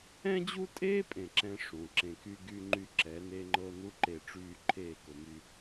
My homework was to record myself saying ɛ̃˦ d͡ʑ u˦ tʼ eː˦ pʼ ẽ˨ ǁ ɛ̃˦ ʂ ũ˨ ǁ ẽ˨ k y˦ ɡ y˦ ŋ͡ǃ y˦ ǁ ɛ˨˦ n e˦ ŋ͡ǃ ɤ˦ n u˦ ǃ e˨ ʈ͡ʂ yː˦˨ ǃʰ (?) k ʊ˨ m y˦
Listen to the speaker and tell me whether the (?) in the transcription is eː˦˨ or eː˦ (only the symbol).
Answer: eː˦˨